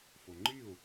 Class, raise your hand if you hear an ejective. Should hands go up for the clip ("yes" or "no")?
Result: no